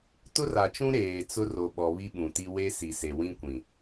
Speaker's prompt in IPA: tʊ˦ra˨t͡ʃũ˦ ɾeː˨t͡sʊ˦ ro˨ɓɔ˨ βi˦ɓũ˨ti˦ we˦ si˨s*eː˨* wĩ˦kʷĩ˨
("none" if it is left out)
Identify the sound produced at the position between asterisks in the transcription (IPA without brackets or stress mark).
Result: e˨